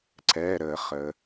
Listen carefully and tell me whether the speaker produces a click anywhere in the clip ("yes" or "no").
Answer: yes